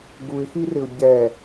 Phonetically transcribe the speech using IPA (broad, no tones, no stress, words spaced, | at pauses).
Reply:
ɡuɪ̯xirɪʊ̯ ɟɛ